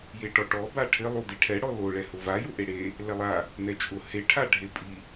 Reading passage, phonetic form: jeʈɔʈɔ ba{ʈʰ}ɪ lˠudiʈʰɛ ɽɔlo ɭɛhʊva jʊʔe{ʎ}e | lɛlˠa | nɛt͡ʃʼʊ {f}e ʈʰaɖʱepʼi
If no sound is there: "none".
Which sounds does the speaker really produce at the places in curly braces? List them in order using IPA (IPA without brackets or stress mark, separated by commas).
ʈʰ, ɽ, h